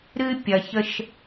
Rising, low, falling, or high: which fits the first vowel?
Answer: high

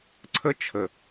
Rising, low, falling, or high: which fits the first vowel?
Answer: high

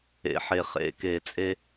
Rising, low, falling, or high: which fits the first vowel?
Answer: rising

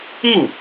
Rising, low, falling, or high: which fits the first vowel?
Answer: falling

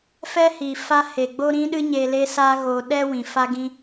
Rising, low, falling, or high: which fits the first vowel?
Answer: high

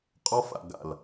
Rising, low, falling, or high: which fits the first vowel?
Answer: high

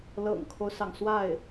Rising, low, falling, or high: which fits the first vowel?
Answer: low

